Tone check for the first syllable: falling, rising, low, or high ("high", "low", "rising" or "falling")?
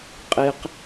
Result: high